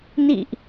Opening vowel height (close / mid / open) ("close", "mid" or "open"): close